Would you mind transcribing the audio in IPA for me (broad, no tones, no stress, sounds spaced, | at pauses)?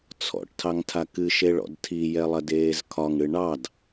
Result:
t͡sʰ ɔ̰ ʈ tʰ ɑ ŋ tʰ a k ɨ ʃ e ɭ ɔ̰ d tʰ i j ɛ lˠ ɐ d eː z kʰ ɒ ŋ ɽ ɨ ɳ ɑ d